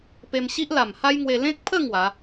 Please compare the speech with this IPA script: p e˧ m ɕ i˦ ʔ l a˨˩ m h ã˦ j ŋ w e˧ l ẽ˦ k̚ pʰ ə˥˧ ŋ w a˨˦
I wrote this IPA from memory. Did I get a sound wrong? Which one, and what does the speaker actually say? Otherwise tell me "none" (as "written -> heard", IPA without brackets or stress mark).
ã˦ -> a˦